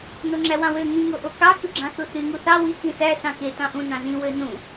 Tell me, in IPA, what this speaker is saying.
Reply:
noŋ͡ǁæwɑ̃wø ŋĩ ŋoʔokɑ kɯɡ͡ǁɑ̃θuθy ŋuθɑ wi kĩsæ sɑ̃ke tɑ̃ʔũ nɑ̃zĩ wønũ

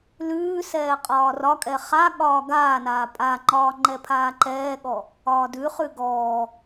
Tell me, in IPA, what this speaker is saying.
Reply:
lʉːsɛː qʼɒːrɒkʼɛ χa ɠɒːɡaːnaː pʼaŋ͡ǃɒː ŋ͡ǃɛpʰaːǃɛːɠɔ | ɒːdʉχʉ ɡɔː

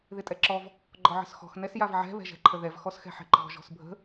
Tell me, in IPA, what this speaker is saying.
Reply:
ðɪtʼɛǁɔv | ɡ͡ǃɔʕə̤sxɔ̤x nɛsjavʕɛ̤ βɛ̤ʒɛ̤ǃʰəðɛv xɔsxɛ̤ħɛ̤ǃɔ̤ ʒɔ̤sbʱə̤

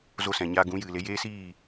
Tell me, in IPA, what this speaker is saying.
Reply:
zo˧sɛ̃˨ɲa˧ ɡũ˨˦ jɨ˨le˧jeː˦siː˦˨

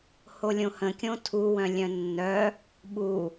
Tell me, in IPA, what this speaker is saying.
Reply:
holʲõhə̃ kʲõtʰuwœ̃ lʲœ̃nːœ | ɓu

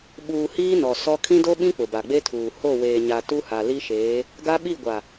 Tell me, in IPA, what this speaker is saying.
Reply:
ɓuː˨ hiː˦ nɔ˨ sɔ˦ kʰĩ˦do˦ɓĩ˦ k͡pʊ˨ba˨ɡ͡be˦tʰuː˨ ho˦˨weː˨ ɲa˨ tu˦ha˨li˦ʃeː˨˦ | ɡa˦ɓi˦˨ɡʷa˨

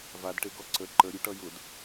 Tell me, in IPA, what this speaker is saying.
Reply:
vadʈeɡɔ ǀə ǃəɾʲuʈʌ jʊd

